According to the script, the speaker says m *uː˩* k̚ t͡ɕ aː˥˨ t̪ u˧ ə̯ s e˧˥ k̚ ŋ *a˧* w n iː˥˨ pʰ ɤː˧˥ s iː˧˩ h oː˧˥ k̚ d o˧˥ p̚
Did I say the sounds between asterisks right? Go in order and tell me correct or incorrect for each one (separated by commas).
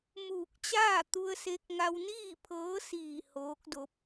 incorrect, correct